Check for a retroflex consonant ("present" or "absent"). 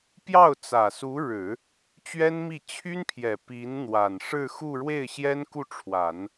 present